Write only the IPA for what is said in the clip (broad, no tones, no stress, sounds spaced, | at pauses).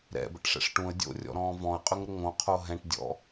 ɾ ɛ̰ b ə̰ ʈ ʂ ɛ̰ ʂ ʈ ũ ə̯ dʲ o̰ rʲ ɔ̰ ɾ ɔ̃ː v ɔ̃ ə̯ qʼ ʏ ŋ ɾ ə ŋ õ qʰ o ɦ ɛ̃ ʈ dʲ ɔ̰